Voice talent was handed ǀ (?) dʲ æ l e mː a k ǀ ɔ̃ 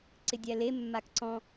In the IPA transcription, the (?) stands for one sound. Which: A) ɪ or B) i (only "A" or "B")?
A